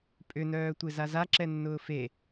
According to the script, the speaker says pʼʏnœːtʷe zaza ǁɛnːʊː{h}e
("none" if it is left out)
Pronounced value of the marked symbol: f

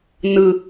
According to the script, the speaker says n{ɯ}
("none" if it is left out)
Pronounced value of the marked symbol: ɯ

